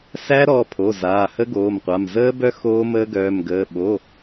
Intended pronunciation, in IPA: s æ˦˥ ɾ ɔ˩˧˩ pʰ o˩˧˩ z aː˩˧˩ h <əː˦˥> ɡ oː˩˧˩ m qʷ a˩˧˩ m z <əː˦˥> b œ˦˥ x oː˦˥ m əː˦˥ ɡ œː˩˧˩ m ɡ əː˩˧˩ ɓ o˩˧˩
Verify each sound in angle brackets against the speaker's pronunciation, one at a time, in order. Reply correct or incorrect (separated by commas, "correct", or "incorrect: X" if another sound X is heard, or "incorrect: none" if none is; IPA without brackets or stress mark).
incorrect: ə˦˥, correct